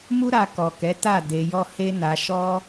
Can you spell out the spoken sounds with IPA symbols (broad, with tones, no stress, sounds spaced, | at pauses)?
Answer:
m u˦ ɾ a˧ k ɔ˨ k ɛ˨˦ t a˦˨ d e˧ j ɔ˦ h e˦ n a˧ ʃ ɔ˦